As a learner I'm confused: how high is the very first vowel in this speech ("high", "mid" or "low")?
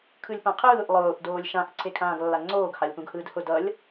high